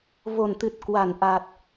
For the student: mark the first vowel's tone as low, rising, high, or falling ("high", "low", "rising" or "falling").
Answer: low